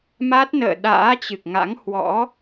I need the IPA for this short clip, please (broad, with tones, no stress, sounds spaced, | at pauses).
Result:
m a˦˥ t̚ n ə̰ː˧˨ ɗ a̰ː˧˥ t͡ɕ ɨ˨˩ k̚ ŋ a̰˧˥ ŋ h w ɔ̰˧˥